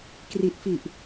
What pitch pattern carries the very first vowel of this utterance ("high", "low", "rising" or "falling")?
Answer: low